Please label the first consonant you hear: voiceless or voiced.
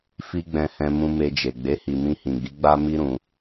voiceless